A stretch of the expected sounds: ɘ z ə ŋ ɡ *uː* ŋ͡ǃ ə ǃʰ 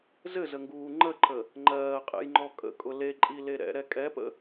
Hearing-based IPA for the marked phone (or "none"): uː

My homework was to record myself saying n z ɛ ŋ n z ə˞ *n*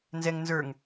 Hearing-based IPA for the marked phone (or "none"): ŋ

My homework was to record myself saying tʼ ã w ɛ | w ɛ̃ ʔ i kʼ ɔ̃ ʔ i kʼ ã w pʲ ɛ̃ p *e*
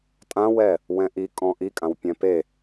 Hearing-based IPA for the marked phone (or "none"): e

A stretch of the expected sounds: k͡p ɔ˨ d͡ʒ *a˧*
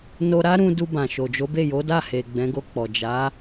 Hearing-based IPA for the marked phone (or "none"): a˨˦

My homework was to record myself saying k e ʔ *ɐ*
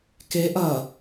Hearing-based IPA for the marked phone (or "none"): ɐ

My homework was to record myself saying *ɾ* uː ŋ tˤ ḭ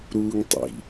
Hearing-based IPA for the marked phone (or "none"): ɾ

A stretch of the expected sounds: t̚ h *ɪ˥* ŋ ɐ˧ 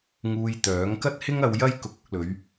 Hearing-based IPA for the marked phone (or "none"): ɪ˥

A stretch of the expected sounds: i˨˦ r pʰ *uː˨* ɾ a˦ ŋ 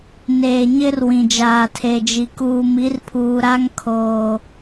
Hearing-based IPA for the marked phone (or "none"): uː˨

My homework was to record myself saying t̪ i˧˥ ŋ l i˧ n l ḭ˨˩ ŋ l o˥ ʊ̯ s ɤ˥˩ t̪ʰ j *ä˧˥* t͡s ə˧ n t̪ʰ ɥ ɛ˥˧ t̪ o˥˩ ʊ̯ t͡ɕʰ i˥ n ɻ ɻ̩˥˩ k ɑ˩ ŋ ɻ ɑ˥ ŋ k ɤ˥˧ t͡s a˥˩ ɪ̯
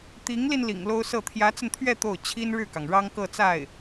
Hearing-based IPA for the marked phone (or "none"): ä˧˥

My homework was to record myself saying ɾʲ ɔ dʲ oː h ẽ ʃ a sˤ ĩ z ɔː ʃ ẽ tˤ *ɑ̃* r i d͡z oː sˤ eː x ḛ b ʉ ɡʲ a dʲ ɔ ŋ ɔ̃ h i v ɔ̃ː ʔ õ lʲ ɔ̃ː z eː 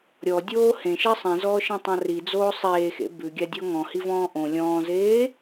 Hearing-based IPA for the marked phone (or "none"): ɑ̃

